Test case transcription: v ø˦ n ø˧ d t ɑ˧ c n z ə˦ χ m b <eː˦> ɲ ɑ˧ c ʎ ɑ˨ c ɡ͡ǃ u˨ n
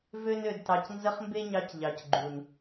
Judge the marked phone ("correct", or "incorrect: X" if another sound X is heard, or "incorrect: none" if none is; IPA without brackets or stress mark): incorrect: e˦